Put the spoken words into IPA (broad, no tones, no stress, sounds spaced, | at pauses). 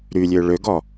ɾ y lʲ ø ɭ ø ɡ ɔ